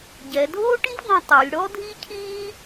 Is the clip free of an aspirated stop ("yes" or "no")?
no